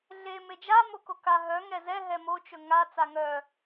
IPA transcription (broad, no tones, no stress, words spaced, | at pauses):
ɮe med͡ʒa mokoka ɦœ ŋɛzɛ ɦɛmo t͡ʃɵŋa t͡saŋœ